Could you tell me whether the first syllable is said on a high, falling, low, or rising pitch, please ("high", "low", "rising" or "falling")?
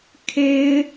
high